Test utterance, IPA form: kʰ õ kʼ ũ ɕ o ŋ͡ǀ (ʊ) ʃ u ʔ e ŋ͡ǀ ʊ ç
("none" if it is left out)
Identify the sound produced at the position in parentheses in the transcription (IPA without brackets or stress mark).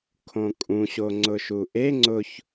ʊ